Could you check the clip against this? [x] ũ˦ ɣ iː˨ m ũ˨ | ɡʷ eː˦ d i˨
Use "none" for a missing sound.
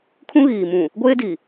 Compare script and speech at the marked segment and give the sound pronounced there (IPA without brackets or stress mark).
kʰ